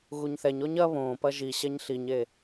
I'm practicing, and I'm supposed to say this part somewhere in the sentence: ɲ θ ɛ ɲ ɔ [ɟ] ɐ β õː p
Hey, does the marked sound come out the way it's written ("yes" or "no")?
no